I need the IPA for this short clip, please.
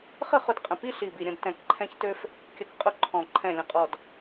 χə˥˨χʊ˧d qʼə̃˨˩ pi˥˨ɬi˨˩bi˨˩ɾʲə̃˥˨d tɛ̃˨˩kǃʰɛ̃˧çtø˧f | kʲə˧kqʼʊ˥˨ǃʰɔ̃˨˩ ǃʰɛ̃˨˩lʲə̃˨˩qʼɔ˨˩d

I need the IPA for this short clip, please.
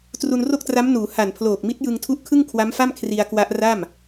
tru˧nro˥˩k̚tra˦˥mnuː˩˦ ha˨˩npʰloː˨˩k̚mi˦˥t̚jɯ˧ŋ tʰu˦˥ʔkʰɯ˥˩ŋkʰwa˦˥mfa˥˩m kʰri˧a̯kwa˦˥ʔ ra˥˩m

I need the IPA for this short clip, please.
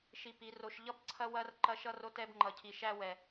ʃi˧pi˨˦ro˧ʃ ʎʌ˦b ǀʰɐ˦ wɐ˦r ǃɐ˧ʃʌ˧ro˧t ɛ˧bŋ͡ǃʌ˨cʰi˨ ʃæ˧wɛ˨

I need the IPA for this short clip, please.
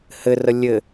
hɘrə lʲɘ

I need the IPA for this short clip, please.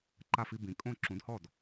ǃa˥˩fi˧ bĩ˩˥kʼõ˥˩ ǁũ˩˥dhɔ˥˩d

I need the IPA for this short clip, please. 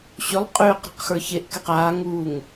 ɕʏlˠ qʼʏːq ɾɛ̤qxə˞çeʔkɛq aːŋuːŋ

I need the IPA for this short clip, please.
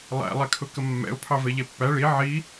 lˠæ̰ lˠɛkʰʊkəmːɛ̰ʊ̯ pʰɑvɛʎɛpːæ ɭi ʕi

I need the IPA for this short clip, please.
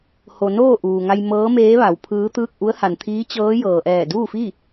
ho˧ noː˥˨ʔuː˩ŋa˧j mɤː˧˥meː˧˥ʋa˩˧w pʰɯː˧˥t̪ɯː˥˨k̚ ʔu˧˥ə̯ha˩nt̪ʰiː˧˥ t͡ɕɤː˧˥jɤː˩ʔɛː˧˩ duː˥˨fi˥˨

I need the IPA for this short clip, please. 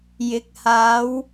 jɪ˨˥k̚ haː˨˥w

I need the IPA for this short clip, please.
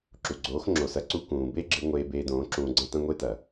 ǁu˨ɡ͡ǀoː˨˦xŋ͡ǁo˨sɐ˨˦ ǀu˧kũː˨be˦ɡ͡ǁɨ˧ ŋʷeː˧beː˧dõː˨˦ ǁũː˧ɡ͡ǀɐ̃˦tɐ̃˦ ŋʷe˦tɐ˨

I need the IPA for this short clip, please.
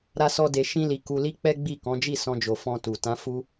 ɾa˦sɔ˦de˧ ʃĩ˦li˧ku˧ li˦k͡pɛ˦ɡ͡bi˦˨ kɔ̃˨˦d͡ʒi˦˨sɔ̃˧d͡ʒo˨ fɔ̃˧tu˨ tã˨˦fu˧

